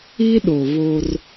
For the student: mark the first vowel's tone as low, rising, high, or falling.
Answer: high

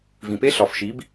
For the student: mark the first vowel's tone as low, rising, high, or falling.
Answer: low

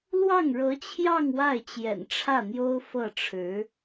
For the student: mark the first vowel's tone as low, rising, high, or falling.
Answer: falling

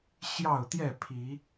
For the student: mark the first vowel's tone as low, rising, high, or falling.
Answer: falling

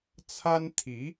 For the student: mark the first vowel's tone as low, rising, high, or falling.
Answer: high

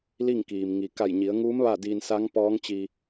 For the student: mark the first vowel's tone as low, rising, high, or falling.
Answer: falling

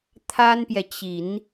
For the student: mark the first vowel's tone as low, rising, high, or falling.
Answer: high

